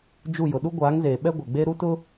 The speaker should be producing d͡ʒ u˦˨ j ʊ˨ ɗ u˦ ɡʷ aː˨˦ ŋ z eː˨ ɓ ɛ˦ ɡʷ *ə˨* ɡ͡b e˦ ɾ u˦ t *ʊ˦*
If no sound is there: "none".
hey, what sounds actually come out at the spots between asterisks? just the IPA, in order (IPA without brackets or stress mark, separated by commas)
ɛ˨, ʊ˦